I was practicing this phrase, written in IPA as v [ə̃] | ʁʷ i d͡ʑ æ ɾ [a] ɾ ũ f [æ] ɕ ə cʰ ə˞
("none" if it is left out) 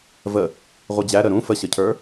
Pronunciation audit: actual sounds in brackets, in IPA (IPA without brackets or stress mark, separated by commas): ə, ə, ə